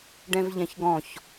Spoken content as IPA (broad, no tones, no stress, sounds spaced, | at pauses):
ɖ ɛ̃ v ʎ ɛ̃ ç ɡ ɔ̃ ç